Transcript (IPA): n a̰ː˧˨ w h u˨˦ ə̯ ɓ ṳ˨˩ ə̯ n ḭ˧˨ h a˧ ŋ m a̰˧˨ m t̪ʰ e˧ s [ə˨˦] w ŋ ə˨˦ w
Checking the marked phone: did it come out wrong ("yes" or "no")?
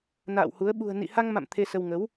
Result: yes